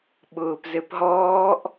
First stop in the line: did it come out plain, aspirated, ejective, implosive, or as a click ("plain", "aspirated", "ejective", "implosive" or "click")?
implosive